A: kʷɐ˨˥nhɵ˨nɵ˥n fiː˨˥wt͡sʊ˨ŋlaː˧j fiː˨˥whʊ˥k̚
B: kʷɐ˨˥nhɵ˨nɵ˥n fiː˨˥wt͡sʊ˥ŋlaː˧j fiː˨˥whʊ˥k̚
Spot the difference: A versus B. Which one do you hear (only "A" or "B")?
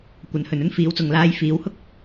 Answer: A